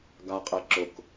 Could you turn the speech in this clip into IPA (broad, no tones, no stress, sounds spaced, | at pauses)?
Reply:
ɡ a qʼ e ǁ ʊ k